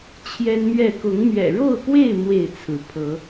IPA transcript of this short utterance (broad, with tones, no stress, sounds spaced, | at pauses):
t͡ɕʰ j ɛ˦ n m ɥ ɛ˥˨ k ʊ˨˦ ŋ m ɥ ɛ̰˨˩ ɻ o˥˨ ʊ̯ k w e˥˨ ɪ̯ m w e˥˨ ɪ̯ t͡sʰ ɹ̩˨˦ pʰ ɤ˨˦